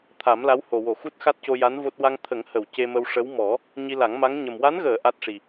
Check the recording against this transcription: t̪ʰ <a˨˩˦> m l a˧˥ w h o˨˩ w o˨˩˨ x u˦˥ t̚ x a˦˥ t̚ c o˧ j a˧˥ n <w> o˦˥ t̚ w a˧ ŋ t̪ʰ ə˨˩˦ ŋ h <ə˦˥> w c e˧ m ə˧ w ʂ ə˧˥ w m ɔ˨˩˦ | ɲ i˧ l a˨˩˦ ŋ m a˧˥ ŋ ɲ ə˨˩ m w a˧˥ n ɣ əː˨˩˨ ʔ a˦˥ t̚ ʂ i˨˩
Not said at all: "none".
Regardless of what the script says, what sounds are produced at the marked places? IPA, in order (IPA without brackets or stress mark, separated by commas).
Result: a˨˩˦, v, ə˨˩˨